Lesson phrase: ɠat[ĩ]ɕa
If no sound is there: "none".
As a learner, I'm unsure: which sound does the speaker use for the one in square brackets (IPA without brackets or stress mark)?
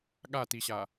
i